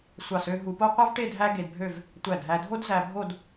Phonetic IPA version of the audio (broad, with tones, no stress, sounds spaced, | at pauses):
sʷ ɑ˧˩ s ø˧ ɦ u˧ p o˥ qʷ ɑ˥ v ʈ e˥˧ dʱ æ˥ ɡ e˧ d bʱ ø˥˧ v | tʷ æ˧˩ d ɦ æ˧ dʱ o˥ d z æ˧ bʱ o˥˧ d